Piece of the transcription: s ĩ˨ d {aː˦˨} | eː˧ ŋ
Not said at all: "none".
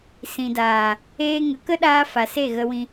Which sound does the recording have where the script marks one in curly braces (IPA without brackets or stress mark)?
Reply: aː˨